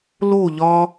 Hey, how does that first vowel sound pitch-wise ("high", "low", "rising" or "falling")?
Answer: falling